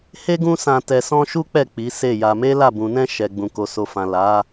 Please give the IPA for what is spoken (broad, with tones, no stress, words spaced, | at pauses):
he˦ɡũ˦sã˧ tɛ˧sɔ̃˦ʃu˦k͡pɛ˦˨ k͡pi˨˦se˦˨ja˧ me˦la˦˨ bũ˨nɛ̃˧ ʃɛ˨ɡ͡bũ˨ko˨ so˨fã˨ la˨˦